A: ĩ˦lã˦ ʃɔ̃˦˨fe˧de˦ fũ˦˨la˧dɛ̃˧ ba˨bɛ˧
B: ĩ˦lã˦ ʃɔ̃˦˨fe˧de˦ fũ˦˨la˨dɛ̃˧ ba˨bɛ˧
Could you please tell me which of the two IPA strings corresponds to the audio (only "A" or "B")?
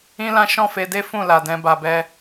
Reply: B